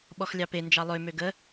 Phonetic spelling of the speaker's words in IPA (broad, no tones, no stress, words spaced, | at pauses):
ɓɔxlʲɑpe nd͡ʒɑlˠø møɡə